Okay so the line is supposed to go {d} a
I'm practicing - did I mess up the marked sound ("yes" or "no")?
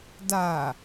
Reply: no